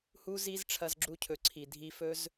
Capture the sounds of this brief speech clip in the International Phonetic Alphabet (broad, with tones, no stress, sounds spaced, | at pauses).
h u˦ z i˦ z ʈ͡ʂʰ ɐ˧ z ɡ͡ǁ u˧ cʰ ɵ˨ ǀʰ i˨ dʱ i˧ f ɵ˦ z